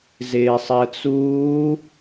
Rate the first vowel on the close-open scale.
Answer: close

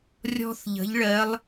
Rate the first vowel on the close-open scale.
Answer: mid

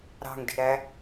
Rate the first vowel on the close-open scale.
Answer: open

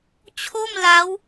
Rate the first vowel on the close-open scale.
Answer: mid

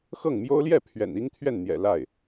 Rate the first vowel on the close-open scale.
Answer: mid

